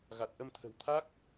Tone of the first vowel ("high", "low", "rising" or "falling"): low